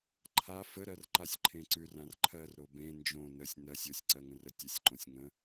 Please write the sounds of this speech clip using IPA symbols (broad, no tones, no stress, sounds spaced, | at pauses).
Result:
ǃʰ a f ə ɾ ɜ r ǃ a sʲ ǃʰ ẽ ǀ ʉ r ã r ǃʰ ɜ r ɾ o b ẽ n d͡ʒ õ n ə sʲ n ɜ sʲ o sʲ ǀ ɜ ŋ ə̃ r ə tʲ ə sʲ ǃ õ sʲ ŋ ə̃